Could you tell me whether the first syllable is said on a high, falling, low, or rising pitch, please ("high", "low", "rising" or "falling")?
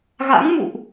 rising